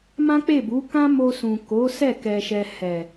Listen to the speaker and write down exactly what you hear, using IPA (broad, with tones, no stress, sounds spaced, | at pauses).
m ã˦ k͡p e˦˨ b u˨˦ k ã˦ m o˧ s ũ˨ k o˨˦ s ɛ˦˨ k ɛ˧ ʃ ɛ˧ h ɛ˨